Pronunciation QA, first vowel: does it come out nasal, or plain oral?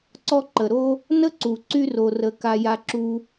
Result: oral